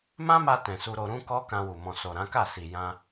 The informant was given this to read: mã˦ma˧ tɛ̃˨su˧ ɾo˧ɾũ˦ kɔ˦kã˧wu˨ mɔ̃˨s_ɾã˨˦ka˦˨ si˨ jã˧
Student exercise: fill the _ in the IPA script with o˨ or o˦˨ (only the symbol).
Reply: o˨